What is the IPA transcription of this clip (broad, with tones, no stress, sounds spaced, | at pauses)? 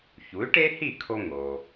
ç u˩˥ y̯ ʈ e˥ h i˥˩ kʰ o˧ ŋ o˩